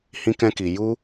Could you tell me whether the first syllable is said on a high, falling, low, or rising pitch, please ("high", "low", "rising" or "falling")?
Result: high